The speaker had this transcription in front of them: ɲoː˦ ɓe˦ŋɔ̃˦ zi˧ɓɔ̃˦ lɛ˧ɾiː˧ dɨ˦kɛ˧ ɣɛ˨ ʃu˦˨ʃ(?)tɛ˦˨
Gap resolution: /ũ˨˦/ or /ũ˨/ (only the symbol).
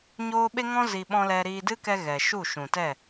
ũ˨